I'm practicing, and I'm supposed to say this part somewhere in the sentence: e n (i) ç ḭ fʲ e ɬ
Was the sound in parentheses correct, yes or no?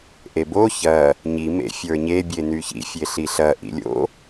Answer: no